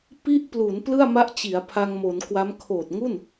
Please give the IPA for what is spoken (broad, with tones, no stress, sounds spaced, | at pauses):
p i˥˩ ʔ p l u˩˦ n p l ɯ˥˩ a̯ m a˦˥ ʔ t͡ɕ i˩˦ a̯ pʰ a˧ ŋ m o˩˦ n k w a˦˥ m kʰ oː˨˩ t̚ ŋ u˥˩ n